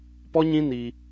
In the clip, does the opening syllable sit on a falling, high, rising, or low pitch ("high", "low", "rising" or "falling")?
high